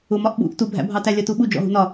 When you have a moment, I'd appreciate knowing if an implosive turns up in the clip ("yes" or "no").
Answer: yes